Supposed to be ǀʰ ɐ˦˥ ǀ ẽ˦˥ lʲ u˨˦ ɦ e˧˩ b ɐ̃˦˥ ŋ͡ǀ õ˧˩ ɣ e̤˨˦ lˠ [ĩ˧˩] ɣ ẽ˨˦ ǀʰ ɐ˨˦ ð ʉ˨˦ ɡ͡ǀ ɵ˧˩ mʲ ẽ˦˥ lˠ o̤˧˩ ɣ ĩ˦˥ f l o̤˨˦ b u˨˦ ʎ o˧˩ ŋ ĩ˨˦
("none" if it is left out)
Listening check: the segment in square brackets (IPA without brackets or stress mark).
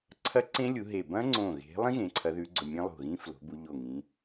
ĩ˦˥